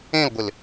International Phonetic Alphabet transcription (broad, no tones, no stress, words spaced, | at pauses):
ẽlɡʷɪl